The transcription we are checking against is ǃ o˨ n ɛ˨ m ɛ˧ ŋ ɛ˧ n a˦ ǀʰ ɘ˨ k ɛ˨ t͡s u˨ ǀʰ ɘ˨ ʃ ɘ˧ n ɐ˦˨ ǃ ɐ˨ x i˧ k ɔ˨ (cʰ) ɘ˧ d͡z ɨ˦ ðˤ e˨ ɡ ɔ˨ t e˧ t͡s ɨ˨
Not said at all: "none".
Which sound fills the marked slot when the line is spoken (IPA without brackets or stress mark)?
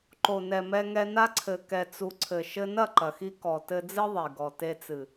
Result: t